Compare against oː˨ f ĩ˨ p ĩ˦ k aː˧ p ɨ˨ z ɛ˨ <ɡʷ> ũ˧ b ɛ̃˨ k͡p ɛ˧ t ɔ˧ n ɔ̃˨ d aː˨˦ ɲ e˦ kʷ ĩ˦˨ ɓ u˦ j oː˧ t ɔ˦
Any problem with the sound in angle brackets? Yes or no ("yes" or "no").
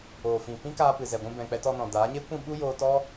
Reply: no